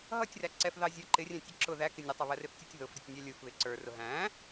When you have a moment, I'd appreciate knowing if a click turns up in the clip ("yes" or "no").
yes